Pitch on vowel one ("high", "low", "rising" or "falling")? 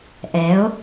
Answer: rising